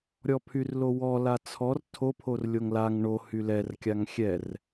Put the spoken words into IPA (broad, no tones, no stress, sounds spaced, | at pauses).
ɾʲ ɔ pʰ y r l o w ɔ l a t͡sʰ ɔ r tʰ o pʰ o r lʲ o ŋ l a ŋ ɳ o h y l ɛ r kʲ a ŋ xʲ ɛ r